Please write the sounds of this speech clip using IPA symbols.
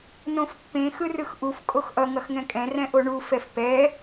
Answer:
n õ f pː ẽ x ɯ r ɯ x ʔ u f kʼ o x ʔ ʌ ŋ ʌ x ŋ ɛ̃ kʼ ɛ̃ r ɛ̃ ʔ o ɳ u f ɛ f p ɛ

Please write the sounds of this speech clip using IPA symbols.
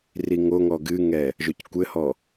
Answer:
r i ŋ o ŋ ɔ ɡ ɨ ŋ ɛ | ʒ o c kʷ ɘ h ɔ

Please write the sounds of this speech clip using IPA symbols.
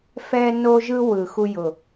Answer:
f ɛ˧ n o˧ ʒ ɯ˧ w ɯ˨˩ x u˧ j ʊ˨˩

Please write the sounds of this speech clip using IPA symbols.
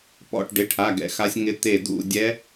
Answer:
p ɔ̰˥˨ ʈ ɖ ɪ˧˥˧ ʈʰ a˧˥˧ ɡ ɛ̰˧˥˧ x a˦˥ sʲ ŋ ɪ˦˥ t̪ e˥˨ d ṵ˥˨ dʲ ɛ˦˥

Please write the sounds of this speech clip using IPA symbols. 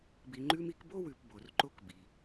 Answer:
b i˨ ŋ͡ǃ ʉ˦ m i˦ k b o˥ w ʉ˨ p b o˩ r ǃ o˦ k b i˩

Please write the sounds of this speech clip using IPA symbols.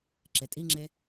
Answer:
ǁ e tʼ i ŋ͡ǁ e

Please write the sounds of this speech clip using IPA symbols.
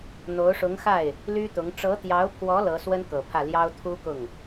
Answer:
n̪ o˧˥ ʊ̯ ʂ ʊ˧˥ ŋ x a˥˩ ɪ̯ | l y˥ t̪ ʊ˧˥ ŋ ʈ͡ʂ ɤ˧˥ t̪ j ɑ˧˥ ʊ̯ pʰ w ɔ˧˥ l ɤ˧˥ s w ə˥ n k ɤ˨˩ pʰ ä˥˩ l j ɑ˥ ʊ̯ t̪ʰ u˥ k ʊ˥˩ ŋ

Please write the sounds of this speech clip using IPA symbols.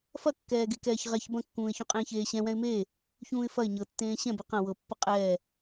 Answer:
f ɐ kː ɛː ɡ e k ɛː ç ʁ ɛ ç b ɐ̃ kː ũː ɪ̯ ç ũ qʼ ẽː ç eː ɕ ɛ̃ w ɛ̃ ɪ̯ m eː | ç ũː ɪ̯ f ɐ ɪ̯ ɲ ɤ tː ẽː ɕ ɛ̃ b e q ɐ̃ w ɤ pː ɐ qʼ ɛː

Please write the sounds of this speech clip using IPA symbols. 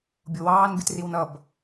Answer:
bʲ ʊ w ɑː n b i t r i w n ʌ b

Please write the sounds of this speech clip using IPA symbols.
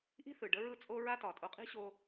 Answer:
ʔ i̤˦ θ ɯ˨ ɖ ə˦ ɹ ɯ˦˨ t͡sʼ o˦ ɹ a˦ t ɒ˨ tʼ o˧ qʼ i̤˦ ɕ o˧

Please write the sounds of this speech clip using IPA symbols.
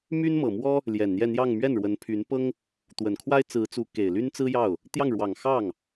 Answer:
m y˥ n m ɤ˨˩ m w ɔ˥ | l j ɛ˨˩ n n̪ j ɛ˥˧ n̪ j ɑ˥˧ ŋ m ɥ ɛ˥˩ n ɻ w ə˧˥ n pʰ y˧˥ n p ɤ˥ ŋ | t̪ w ə˨˩ n kʰ w a˥ ɪ̯ t͡s ɹ̩˧˥ t͡s u˧˥ k e˨˩ ɪ̯ l y˥ n t͡s ɹ̩˥ j ɑ˥˩ ʊ̯ | t̪ j ɑ˥˩ ŋ ɻ w ɑ˨˩ ŋ x ɑ˥˩ ŋ

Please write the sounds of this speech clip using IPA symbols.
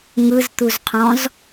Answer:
ŋ ɯ z t̪ u z qʰ ɔ̃ z

